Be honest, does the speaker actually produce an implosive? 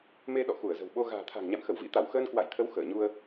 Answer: yes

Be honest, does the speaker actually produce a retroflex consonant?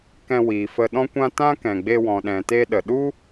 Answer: no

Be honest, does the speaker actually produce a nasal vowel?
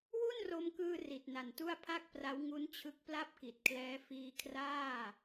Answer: no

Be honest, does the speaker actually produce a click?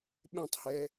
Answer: no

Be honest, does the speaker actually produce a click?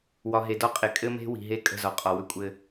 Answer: no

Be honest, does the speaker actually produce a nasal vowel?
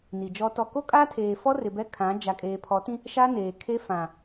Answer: yes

